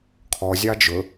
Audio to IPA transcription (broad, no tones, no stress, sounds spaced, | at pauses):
kʰ ɔ zʲ ɑ d͡ʒ ɵ